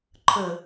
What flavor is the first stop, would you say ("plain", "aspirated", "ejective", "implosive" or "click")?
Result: click